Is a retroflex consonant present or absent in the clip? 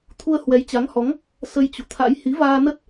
absent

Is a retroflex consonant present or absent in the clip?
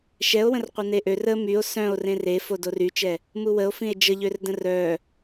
absent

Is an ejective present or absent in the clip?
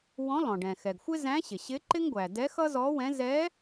absent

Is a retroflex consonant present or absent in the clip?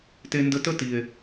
absent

